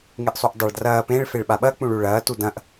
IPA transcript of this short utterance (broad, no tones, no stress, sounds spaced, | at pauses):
ŋ e ʔ sˤ u ʔ dˤ a ɭ d r ɐː p ẽ ɭ f e ɭ ɓ a ɓ ɐ k͡p ũ ɭ u ɭ ɐː t u d ɐ̃ ʔ